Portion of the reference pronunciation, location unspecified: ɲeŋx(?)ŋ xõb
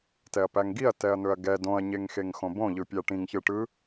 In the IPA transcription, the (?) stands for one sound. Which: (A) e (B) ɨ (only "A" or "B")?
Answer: A